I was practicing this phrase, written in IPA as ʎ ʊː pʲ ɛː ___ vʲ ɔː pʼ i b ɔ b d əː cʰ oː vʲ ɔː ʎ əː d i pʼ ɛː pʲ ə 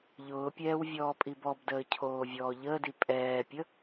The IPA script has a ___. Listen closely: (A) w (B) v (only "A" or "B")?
A